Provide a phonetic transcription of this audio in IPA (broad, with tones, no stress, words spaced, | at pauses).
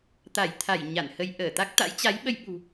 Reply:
t̪a˧˩j t̪ʰa˧˩j ɲa˧˩nhə˧j ʔəː˧˩t̪a˦˥k̚ t̪a̰˧˥jt͡ɕa˨˦jɓə˧jɓṳ˨˩